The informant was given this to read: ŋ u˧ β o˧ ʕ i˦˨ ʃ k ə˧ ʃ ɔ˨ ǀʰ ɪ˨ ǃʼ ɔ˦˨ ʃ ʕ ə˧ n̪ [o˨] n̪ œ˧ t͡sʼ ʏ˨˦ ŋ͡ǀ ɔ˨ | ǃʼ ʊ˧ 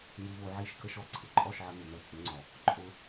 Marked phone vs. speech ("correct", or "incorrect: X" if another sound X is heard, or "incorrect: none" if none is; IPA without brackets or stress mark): incorrect: u˨